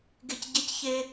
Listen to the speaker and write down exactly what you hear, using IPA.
ɡ e˦ c ɟ e˦ c ç e˦

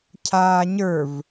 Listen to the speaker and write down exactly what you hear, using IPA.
cʰ aː ɲ ə˞ v

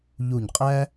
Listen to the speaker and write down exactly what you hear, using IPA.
ʎ u˦˨ ɲ qʼ æ˥

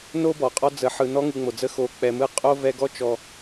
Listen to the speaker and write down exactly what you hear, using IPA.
n o˥ b ɔ˩ qʼ ɔ˦ d͡z ə˨ ħ ɯ˨ n ɔ˥ ŋ ɯ˨ ŋ͡m o˩ d͡z ə˦ x o˨ k͡p ɛ˨ m ɯ˦ qʼ o˥ v ɛ˦ ɡ ɔ˥ t͡ʃ ɔ˨

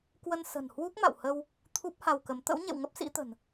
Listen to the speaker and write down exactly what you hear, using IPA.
k w ə˧ n s ə̤˨˩ n h w u˦˥ k̚ m a̰˧˨ w h ə˧ w | t̪ʰ u˦˥ p̚ h a˧ w k ə˨˦ m t̪ ə̰˧˥ w ɲ ḛ˧˨ w ŋ ə˦˥ p̚ s ḭ˧˥ t̪ ə̤˨˩ n

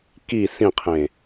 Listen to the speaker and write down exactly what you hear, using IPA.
k i s ĩ qʰ ẽ

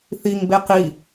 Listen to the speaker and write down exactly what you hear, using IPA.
θ i ŋ b e q i

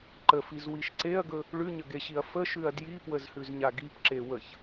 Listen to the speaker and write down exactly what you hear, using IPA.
ǃ ə f i z w i ʃ ǀ e ɐ̯ ɡ ɵ | ɭ ʉ ɲ ə ɡ e ɕ i ɐ̯ f ə ʃ ʉ ɐ̯ d j i p w ə z h ʉ z ɲ a ɡ i p ǁ e w ə ç

